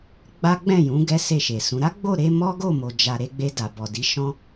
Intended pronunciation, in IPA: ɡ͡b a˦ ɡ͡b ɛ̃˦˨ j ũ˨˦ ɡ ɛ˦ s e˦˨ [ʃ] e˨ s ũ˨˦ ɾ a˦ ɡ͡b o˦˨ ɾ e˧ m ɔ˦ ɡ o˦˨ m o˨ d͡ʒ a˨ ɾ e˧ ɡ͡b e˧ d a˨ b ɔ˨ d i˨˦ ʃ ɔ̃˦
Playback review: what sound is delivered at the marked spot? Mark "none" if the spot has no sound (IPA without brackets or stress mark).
ʃ